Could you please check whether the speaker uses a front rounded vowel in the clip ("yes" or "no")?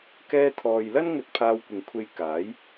no